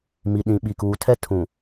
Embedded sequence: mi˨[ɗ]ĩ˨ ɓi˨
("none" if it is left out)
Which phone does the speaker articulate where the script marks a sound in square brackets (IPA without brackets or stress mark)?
ɗ